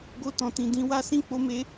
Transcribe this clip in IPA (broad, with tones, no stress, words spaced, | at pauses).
ɡo˧ tɔ̃˨tĩ˨ dĩ˧wa˦sĩ˦ k͡po˦me˦